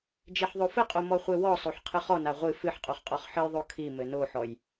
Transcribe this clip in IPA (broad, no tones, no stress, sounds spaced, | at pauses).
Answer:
d͡ʒ e ħ ðˤ o f ɘ qʼ o m ɔ χʷ e w ɔ sˤ o ħ qʰ ɨ χ ɔ n a ʁʷ ɨ f ɨ ħ qʼ o χ qʼ ɔ χ ħ ɘ j ðˤ o kʰ i m ɘ n o ħ ɔ j